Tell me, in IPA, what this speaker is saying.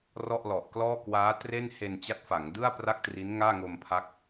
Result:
rɔ˥˩ʔlɔ˨˩ʔklɔː˥˩ kwaː˦˥tre˥˩n he˧nt͡ɕa˦˥t̚fa˩˦ŋdɯ˥˩a̯ pra˥˩k̚tri˦˥n ŋaː˥˩ŋo˧mpʰa˦˥k̚

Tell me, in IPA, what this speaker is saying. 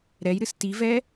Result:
ɾɛjɾɨs tivɛ

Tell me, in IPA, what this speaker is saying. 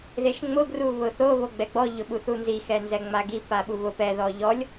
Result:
ðeʃŋ͡mʊ ɡruβʊθo βoɡ͡bɛɡ͡bɔ ʎʊɓuθunzi xɛnzɛŋ͡maɡi paɓuβʊp ɛ ðɔʎɔlʲ

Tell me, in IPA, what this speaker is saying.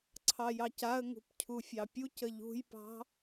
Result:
ǀʰɑjɑcaə̯ŋṳp cʰufʲɑpʲucə ʎṳjpɑ̤

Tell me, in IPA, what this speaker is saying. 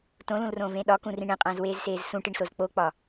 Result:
tõlũlrõːvẽː ɗɒkũrĩ ɳẽqʼæ̃zweːzseːz sũʈiɳsoz k͡pok͡pɒ

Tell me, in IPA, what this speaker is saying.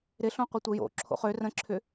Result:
ɾɪɬõqʷətʷə jo̰ǁʰo̰ χø rə̃ǁʰʏ

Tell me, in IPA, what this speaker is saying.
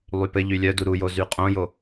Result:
lˠypɘʎy lʲœdu ɾujo zyqʼõjo

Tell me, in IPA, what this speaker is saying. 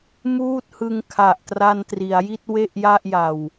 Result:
muː˥˩t̚hɯ˧ŋ kʰa˨˩ʔ tra˧ntri˩˦a̯ji˥˩t̚ we˥˩ʔ ja˥˩ʔja˨˩w

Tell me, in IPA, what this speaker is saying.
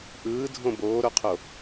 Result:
ʔɯːdʱõ boːɾoqʰo

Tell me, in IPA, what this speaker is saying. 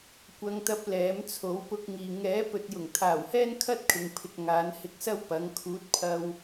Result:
kʷɐ˧ŋt̪ɐ˧p̚ lɛː˨˥m t͡sʰo˨˥wpʊ˧k̚ŋiː˨ ŋɛː˨˥ pɵ˨t̚jʊ˨˩ŋ t̪ʰaː˨˩whɛː˥n kʰɐ˥t̚kʰɪ˨ŋpʰɪ˨k̚ ŋaː˨˥nhɪ˧k̚sɐ˥w pɐ˨˥ŋ kʰuː˨˥t̚pʰɐ˧w

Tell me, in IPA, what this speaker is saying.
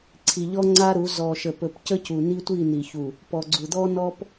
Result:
ǀʰi˨ʎɔ˦ ŋ͡ǀa˦ɾu˨˦ zɔ˨ʃə˨pɵ˨p cə˦cu˨ni˦tʷi˦˨ ni˨çu˨ | pɔ˨ɡ͡ǀu˨d̪ɔ˦ nɔ˦p

